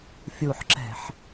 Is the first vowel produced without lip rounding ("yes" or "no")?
no